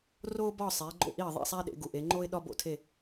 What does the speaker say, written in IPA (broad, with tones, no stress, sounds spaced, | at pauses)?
r oː˥ b ɒ˥˧ sˤ eː˨˦ ɡ͡ǃ o̰˥˩ ʔ i˥˩ ə̯ ðˤ ḛ˥˩ sˤ æ˥ ɗ ḛ˨˦ ɡ u˨˦ ʔ e˨˦ ŋ͡ǃ o˥ ɪ̯ ɗ ɒ˥ b o̰˥˩ tʰ e˥˧